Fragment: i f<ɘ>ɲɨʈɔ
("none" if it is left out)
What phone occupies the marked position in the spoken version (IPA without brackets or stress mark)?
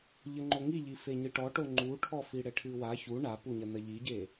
e